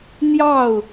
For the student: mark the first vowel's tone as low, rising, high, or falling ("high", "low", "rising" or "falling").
falling